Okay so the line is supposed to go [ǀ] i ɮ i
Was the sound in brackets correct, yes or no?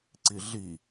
yes